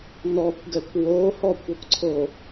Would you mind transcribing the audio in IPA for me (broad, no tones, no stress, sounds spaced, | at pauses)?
n ɔ kʷ ɡ ɛ kʷ w o h ɔ kʷ ɒ kʷ ǀʰ o